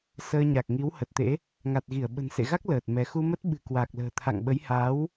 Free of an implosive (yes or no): no